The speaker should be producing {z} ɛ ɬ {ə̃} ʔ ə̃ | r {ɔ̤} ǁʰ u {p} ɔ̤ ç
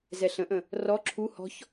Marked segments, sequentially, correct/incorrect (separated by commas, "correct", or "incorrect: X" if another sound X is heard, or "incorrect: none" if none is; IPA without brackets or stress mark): correct, correct, incorrect: ɔ, incorrect: h